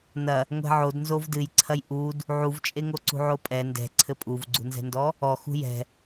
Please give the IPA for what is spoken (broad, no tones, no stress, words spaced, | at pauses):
nɐ | ŋʷɛ̤ʕodnzov dɨjǀʰɐj ʔud | ʕuvt͡ʃʼeŋoǀṳ ʕopʼɛ ndɛ̤ǀʰɘ pʼuvɡ͡ǀṳnzɛ̤ndɔ | ɔxṳ jɛ̤